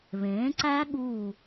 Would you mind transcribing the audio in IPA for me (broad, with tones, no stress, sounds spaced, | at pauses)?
β ẽː˩˥ ǀ æ˦˥ ɠ uː˧˩